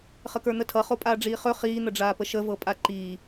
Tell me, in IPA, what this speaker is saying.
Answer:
χəkə˞n̪ətʰʌ χopʼaːɖ͡ʐiːχɵ χiː n̪əɖ͡ʐaːpəʃə vɤpʼaǃiː

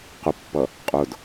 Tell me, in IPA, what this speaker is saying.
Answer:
qʊpːʌ | qʼʊd

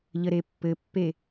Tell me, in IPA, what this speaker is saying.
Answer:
ʎəɾepːɘpːe

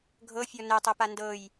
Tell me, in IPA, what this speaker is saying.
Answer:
ɡʱɤfʲɔ nɛtˤɤpa ndɤj

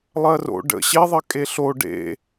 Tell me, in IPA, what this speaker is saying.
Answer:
lˠɜro̰ ɖə̰ ɕeðˤɜ kʼeɬo ɖḛ

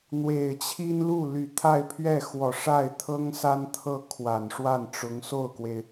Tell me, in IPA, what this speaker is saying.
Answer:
n̪we˨˩ɪ̯t͡ɕʰi˥nlu˥˩ ly˨˩t̪ʰa˥˧ɪ̯pʰɥɛ˥˩ xwɔ˨˩ʂa˥˩ɪ̯t̪ʰɤ˥ŋsa˥n t̪ʰɤ˥˩kʰwa˨˩n ʂwa˥˩nʈ͡ʂʊ˧˥ŋso˥˩ʊ̯kwe˩ɪ̯

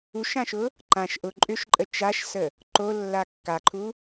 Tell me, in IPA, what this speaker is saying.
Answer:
uʃãʃʊ | ǃãʃ ʔʊ ǃʼʏʃǃʼə t͡ʃaʃsə | ǃolːa kːaǃʰu

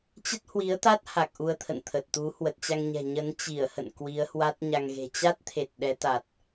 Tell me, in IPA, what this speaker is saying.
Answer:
t͡ɕə˦˥t̚hwi˨˦ə̯t̪a˦˥t̚ ha˨˩k̚ ʔu˧ə̯t̪ʰə̰˧˨nt̪ʰə˨˩t̚t̪u˨˦ hwə˨˩t̚t͡ɕa˧ŋɲɛ̤˨˩ ɲə˨˦n t͡ɕi˧˩ə̯hə̰˧˨n kwi˨˦ə̯hwa˦˥t̚ɲa˧ŋɣe̤˨˩ t͡ɕa˦˥t̚t̪ʰe˨˩t̚ ɗɛ˨˦t̪a˨˩t̚

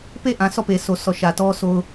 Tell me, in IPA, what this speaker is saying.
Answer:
pe˦˨ʔã˨ sɔ˦˨pe˨so˨sʰɔ˨ ʃä˨tɔ˦so˦ʊ̯

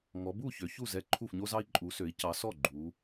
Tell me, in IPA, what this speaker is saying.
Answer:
ŋɔ˨˦ bu˥˨ çø˨˦çu˥˨zɛ˥˨ ǃʰu˥˨fɲo˥zɑ˥i̯ ǃʼu˨˦sø˨˦i̯ cɑ˨˦sɔ˥˨ ɡ͡ǃu˨˦

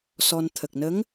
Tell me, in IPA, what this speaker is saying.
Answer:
sɔ˧n t̪ʰə˨˩k̚nə˧˥ŋ

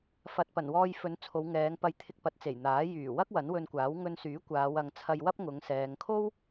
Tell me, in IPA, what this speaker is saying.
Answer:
fɐ˨t̚ pɐ˨˩nwɔː˧jfɵ˨˥n t͡sʰo˨˧wŋɛː˨˧ŋpɐ˧j t̪ʰɪ˧k̚pɐ˨˥t̚t͡se˨˩j n̪aː˨˥ jyː˨˩wɐ˥k̚ wɐ˨˥nwɵ˧nkʷaː˨˥w ŋɵ˧nsyː˨˥ kʷaː˨˧w ɐ˨ŋt͡sʰɐ˧jwɐ˥p̚ŋʊ˨˧ŋ sɛː˨ŋkʰo˥w

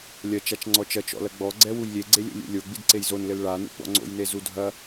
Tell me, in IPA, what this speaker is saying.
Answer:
lʲɐ t͡ʃat͡ʃŋ͡ǀɔt͡ʃɐt͡ʃ ɔ̰lɐɡ͡bɔɡ͡ǀɛ wujlʲeɡ͡ǀelʲo̰ lʲṵlʲo ɡ͡bidǀejzonlɘl ɭanṵ ɡ͡bɔ̰ŋ͡ǀo̰jne zudʱɐ

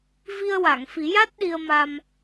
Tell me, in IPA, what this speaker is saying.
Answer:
vi˧ə̯wa˨˩˨ŋfi˨˩˦ja˦˥t̚ ɗi˧ə̯ma˧m

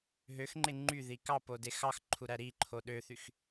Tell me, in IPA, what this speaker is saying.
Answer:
ɦøxŋ͡ǃe ŋ͡ǃyði kɑpode xɑxǃʰuɾæ ɾiǃʰo ɗøθyx

